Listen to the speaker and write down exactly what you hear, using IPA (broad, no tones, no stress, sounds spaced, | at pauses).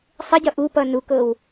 sˤ ɪ ɟ ʌ ʔ u p ʌ n u k ɤ w